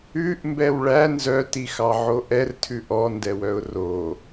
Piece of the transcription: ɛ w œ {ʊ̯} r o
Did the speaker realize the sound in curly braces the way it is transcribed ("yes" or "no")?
yes